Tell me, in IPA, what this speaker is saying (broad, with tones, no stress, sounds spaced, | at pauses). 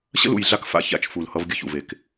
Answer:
ɕ ə̰˦ l ṵ˨ j ɮ a˦ k f a̰˦ ç a̰˦˨ t͡ʃ f u˨ l h ʌ˦ v ɡʲ ə˦ ç ṵ˨ v e˨ k